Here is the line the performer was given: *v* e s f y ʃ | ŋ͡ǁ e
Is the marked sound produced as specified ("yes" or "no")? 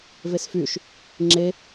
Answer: yes